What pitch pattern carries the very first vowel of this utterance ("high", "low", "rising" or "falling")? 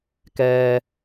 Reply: high